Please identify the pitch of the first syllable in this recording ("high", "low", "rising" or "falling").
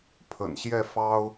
low